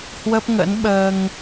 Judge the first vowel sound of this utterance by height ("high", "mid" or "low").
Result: mid